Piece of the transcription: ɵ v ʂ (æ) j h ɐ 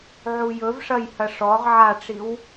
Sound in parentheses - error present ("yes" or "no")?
yes